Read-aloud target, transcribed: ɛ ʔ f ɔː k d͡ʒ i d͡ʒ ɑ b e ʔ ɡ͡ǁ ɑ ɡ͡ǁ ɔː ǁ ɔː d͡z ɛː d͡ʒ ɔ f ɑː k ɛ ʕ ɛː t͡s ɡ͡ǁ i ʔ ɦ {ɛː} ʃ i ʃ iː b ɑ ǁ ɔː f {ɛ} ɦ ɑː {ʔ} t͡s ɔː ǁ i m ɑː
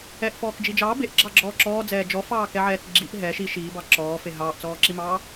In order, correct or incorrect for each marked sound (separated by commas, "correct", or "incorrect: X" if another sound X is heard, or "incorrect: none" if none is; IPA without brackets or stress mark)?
correct, incorrect: e, correct